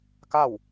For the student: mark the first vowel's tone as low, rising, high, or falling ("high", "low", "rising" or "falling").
falling